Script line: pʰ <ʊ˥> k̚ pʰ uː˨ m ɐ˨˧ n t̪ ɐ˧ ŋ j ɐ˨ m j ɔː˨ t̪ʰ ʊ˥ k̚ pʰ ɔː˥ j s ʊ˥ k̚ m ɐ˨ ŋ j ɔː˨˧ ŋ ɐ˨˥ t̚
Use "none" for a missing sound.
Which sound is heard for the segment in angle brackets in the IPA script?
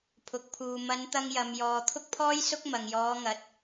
ʊ˨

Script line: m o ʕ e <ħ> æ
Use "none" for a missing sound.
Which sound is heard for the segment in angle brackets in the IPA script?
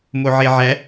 ʕ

